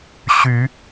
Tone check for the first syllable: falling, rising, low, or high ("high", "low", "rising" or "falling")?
rising